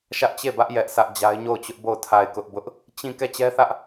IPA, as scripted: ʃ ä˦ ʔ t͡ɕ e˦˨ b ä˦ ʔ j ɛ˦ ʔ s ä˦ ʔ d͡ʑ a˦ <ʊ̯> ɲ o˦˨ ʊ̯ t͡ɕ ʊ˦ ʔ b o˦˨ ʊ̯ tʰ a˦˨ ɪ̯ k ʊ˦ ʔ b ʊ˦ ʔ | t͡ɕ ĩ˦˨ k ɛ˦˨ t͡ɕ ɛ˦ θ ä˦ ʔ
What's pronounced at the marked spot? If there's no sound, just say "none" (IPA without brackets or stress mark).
ɪ̯